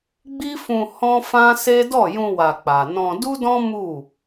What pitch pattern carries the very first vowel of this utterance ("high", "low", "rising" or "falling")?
high